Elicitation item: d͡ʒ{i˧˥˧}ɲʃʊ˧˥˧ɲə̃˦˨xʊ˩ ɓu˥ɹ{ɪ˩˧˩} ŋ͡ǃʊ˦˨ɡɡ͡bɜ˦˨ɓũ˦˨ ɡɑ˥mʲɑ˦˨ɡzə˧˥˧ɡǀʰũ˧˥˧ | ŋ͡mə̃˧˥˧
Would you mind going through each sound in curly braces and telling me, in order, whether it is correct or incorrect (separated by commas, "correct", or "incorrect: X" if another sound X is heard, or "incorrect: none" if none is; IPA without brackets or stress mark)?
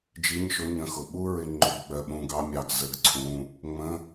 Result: correct, incorrect: ɪ˦˨